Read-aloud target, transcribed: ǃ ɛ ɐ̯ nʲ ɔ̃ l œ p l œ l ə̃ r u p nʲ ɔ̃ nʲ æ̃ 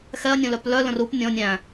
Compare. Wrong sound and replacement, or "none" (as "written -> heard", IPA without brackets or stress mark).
ǃ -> x